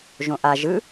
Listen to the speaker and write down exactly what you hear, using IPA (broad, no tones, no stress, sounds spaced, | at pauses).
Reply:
ʒ õ ʔ a ʒ ɯ